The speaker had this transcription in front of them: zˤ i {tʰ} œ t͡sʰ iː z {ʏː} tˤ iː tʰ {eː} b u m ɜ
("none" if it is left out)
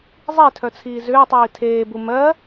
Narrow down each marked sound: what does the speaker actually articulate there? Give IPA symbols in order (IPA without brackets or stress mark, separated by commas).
tʰ, ʏː, eː